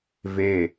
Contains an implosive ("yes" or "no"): no